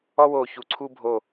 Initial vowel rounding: rounded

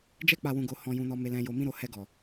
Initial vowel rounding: unrounded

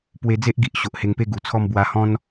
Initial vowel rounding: unrounded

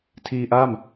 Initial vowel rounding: unrounded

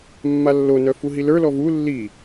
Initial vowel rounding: unrounded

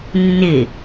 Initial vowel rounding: unrounded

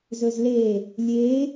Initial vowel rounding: rounded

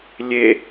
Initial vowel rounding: unrounded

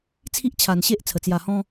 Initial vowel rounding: unrounded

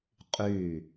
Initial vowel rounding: rounded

